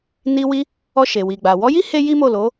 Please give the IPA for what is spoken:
n i˧ w i˧ | ɔ˧ ʃ e˨ w i˨ ɡ͡b a˨ w ɔ˨˦ j i˦ h e˦ j i˦ m o˦˨ l o˨˦

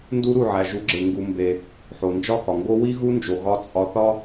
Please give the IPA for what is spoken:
n d u˦ ɾ u˦˨ ʕ æ˨ ʒ u˨˦ ɡ͡ǁ e˨ ŋ ɡ u˨ m b e˨ | ħ o˨ n d͡ʒ ɒ˦ x ɒ˨ ŋ ɡ o˦ w i˦ ɣ u˦ n d͡ʒ o˨ ɣ ɒ˧ t͡sʼ ɒ˧ θ ɒ˦

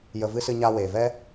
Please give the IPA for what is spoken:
j ə˧ v ɨ˦ s ɨ˧ ɲ a˧ w eː˨ v ɛ˦

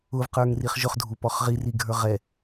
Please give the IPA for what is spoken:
ʊ v q ə˞ ŋ r i χ ʒ ʊ χ dʱ u p ɔ χ ʁ i r i ɡʱ ə˞ ʁ ɛ

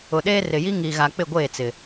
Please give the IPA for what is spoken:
ʊ˨ ɗ eː˦ r ɪ˨ j i˦ ŋ i˨ ɣ a˨ k͡p ɪ˦˨ ɡʷ eː˦˨ t͡s ɪ˨

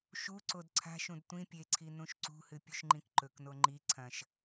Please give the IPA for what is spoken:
ʃ u ǀ o d ǀʰ a̤ ʃ ũ d tʷ ĩ pʲ e ǀʰ i n ũ ʃ ǀ ṳ h ɨ pʲ ʉ ʃ ŋ͡ǃ ĩ k ǃ ɵ k n o ŋ͡ǃ i ǀʰ ɐ̃ ʃ

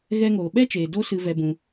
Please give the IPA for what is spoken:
ɣ ɛ˧ ŋ oː˨ ɓ ɛ˦ t͡ʃ eː˨ d o˦ s ɨ˧ v ɛ˧ b ũ˧

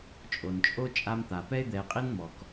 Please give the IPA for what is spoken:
t͡ʃʼ o˩ n t͡ʃʼ o˥ t͡ʃʼ a˦ m t̪ a˩ p ɛ˥ ɪ̯ d̪ ɛ˨ ɪ̯ qʼ i˥ n m ɔ˩ k

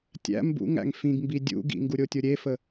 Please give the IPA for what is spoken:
tʲ æ̰ m b ṵ ŋ æ̰ ŋ f ĩ ɡ m b i dʲ ṵ ɡ ḭ ŋ ɡ u ɾʲ o tʲ o ɾʲ e f ə

